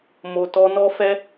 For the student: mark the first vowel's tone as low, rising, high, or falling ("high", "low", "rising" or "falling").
low